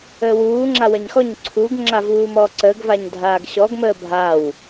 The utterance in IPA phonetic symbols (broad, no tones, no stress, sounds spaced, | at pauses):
əː w uː ŋ͡ǁ a w ɐ ɲ x ɔ ɲ ǀʰ u ɡ ŋ͡ǁ a v uː m ɔː ǀ əː ɡ v a ɲ dʱ aː ɡ ɕ ɔ ɡ m əː bʱ a w